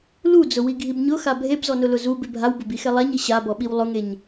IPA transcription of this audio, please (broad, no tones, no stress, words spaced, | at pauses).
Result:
lud͡zʊwiɡʱib ɲʊxa bʱebzɔnʊlʊ zubɪ bʱawbʊbixɛ lˠaɲi ɕabɔɓiw lˠʊŋeɲ